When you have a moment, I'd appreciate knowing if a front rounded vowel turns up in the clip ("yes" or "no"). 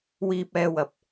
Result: no